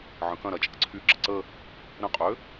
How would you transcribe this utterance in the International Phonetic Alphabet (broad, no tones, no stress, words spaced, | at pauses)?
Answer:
ʕə̃kɐ̃ɾɐ t͡ʃʼə̰ǀʰyɡ͡ǁə̰ ǀə | ɾə̃qʼø